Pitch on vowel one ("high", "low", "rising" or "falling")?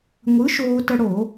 rising